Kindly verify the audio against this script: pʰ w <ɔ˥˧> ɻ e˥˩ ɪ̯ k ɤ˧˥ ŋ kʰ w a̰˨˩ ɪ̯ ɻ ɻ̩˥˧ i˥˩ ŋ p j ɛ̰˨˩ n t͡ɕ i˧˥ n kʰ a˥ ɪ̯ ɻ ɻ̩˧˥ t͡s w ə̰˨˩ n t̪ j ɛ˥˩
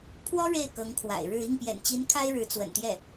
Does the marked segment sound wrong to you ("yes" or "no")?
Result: yes